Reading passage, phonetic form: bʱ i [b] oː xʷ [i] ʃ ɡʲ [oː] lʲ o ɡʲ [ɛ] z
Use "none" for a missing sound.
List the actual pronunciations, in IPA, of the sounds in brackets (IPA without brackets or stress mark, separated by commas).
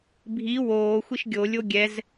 w, i, o, ɛ